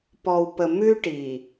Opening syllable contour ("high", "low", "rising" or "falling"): low